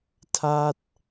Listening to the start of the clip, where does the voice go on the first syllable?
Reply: falling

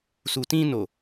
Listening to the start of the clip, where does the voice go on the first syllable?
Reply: low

